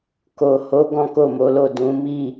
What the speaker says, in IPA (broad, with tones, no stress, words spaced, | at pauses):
ko˨ho˨˦ ɡɔ̃˦ko˦˨mo˨˦lo˦˨ dũ˨˦mi˦˨